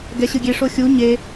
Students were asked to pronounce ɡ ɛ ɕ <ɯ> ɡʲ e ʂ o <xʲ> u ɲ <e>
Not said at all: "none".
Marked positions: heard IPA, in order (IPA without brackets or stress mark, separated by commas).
ɯ, xʲ, e